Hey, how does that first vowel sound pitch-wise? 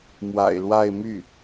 low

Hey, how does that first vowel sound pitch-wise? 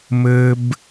high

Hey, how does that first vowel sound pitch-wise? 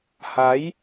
rising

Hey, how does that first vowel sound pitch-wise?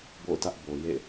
falling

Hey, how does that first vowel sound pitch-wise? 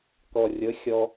low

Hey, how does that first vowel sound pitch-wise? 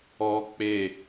high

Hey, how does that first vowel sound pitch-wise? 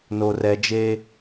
low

